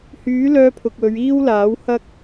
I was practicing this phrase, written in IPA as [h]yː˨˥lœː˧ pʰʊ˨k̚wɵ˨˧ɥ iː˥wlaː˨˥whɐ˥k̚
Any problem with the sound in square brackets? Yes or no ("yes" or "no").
no